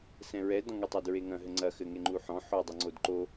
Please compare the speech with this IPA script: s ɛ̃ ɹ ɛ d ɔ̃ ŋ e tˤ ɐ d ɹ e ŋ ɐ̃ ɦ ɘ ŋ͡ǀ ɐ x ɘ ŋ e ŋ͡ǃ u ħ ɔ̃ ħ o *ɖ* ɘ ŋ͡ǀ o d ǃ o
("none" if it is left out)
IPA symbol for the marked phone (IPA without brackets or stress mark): dˤ